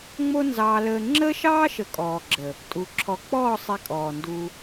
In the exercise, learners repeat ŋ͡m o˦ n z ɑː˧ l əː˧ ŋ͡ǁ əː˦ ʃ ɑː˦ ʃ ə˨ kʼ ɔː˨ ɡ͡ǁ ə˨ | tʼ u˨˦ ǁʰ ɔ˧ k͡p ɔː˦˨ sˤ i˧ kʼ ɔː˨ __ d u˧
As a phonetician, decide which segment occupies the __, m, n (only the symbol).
n